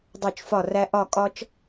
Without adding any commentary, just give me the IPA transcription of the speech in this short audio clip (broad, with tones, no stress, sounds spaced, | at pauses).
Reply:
dˤ o˧˩ t͡ʃ f ɒ˧˩ r æ˧ ʔ ɒ˧˩ kʼ ɒ˧ t͡ʃ